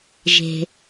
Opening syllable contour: low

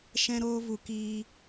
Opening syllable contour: high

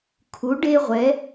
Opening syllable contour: rising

